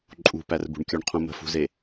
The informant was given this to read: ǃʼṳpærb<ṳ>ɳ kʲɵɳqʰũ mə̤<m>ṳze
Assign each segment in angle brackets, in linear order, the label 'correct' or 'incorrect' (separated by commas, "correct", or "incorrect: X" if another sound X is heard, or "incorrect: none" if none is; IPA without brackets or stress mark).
correct, incorrect: f